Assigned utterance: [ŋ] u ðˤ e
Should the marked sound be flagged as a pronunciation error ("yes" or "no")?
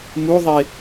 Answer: yes